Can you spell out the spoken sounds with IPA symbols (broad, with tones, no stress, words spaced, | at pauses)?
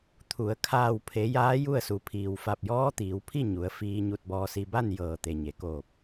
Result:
t̪ʰu˩˧ə̯ kʰaː˧˩wpʰe˩˧ jaː˧˥ju˥˨ə̯su˩˧ pʰiː˩wfa˧˩p̚jɔː˧˥t̪iː˩˧w pʰi˥˨ ɲu˩˧ə̯ fiː˧ɲu˧t̚bɔː˧si˧ ba˥˨n jɤː˧˩ t̪e˩ɲe˩ koː˧˩p̚